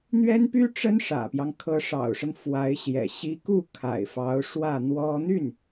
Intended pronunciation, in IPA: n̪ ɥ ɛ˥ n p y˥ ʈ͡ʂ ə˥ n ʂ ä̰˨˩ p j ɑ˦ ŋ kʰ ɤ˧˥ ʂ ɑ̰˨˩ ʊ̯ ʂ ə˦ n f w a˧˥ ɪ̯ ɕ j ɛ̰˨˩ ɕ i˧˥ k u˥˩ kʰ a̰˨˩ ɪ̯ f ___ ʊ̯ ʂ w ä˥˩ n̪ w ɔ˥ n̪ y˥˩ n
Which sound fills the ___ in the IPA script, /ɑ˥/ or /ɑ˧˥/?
ɑ˧˥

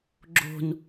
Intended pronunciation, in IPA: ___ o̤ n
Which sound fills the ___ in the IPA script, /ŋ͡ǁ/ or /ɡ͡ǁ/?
ɡ͡ǁ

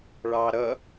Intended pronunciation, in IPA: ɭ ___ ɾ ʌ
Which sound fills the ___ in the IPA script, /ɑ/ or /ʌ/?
ɑ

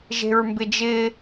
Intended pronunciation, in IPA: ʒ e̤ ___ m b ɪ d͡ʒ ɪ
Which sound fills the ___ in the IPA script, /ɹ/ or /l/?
ɹ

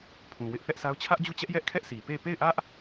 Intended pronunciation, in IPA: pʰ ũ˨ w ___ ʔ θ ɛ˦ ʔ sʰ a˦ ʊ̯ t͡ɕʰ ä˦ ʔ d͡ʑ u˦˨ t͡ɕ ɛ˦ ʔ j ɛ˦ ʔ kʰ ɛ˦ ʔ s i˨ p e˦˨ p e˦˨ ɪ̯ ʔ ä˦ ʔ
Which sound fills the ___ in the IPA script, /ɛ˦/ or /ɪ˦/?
ɪ˦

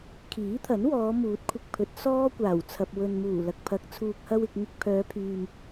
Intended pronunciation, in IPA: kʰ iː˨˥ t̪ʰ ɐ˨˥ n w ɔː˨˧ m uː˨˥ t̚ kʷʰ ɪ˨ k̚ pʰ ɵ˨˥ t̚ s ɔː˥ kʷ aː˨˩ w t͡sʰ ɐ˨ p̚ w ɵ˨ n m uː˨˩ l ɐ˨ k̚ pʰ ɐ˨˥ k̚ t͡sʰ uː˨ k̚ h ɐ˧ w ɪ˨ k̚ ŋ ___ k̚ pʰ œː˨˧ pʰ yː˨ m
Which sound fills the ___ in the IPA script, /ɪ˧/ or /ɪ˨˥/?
ɪ˧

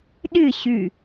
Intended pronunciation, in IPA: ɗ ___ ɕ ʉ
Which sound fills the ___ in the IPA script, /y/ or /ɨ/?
ɨ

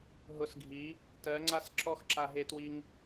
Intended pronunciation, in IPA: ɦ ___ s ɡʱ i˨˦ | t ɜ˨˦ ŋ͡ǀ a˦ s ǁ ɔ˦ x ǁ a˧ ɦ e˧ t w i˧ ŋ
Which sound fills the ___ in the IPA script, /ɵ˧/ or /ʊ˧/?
ʊ˧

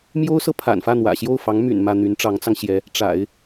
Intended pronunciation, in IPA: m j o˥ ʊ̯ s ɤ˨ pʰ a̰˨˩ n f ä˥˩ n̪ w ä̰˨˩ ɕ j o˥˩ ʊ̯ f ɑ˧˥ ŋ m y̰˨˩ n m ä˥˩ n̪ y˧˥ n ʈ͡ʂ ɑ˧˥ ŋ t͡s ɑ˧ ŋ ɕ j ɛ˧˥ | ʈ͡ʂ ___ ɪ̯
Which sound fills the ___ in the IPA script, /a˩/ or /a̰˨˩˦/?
a̰˨˩˦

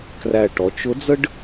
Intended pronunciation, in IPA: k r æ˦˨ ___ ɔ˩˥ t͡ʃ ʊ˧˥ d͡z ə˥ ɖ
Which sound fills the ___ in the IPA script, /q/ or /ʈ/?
ʈ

